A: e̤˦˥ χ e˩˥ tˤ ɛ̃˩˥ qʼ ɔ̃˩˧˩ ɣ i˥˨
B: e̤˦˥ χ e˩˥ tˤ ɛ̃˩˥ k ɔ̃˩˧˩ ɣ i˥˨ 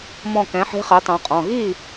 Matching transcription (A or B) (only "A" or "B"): A